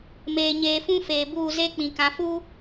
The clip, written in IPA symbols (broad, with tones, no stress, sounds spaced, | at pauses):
m eː˨ ɲ eː˨ f ũ˦ f eː˨ b uː˦˨ z e˦ k͡p ĩ˨ k ã˨ f uː˦